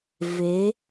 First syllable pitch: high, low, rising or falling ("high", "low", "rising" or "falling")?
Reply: rising